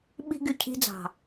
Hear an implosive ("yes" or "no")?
yes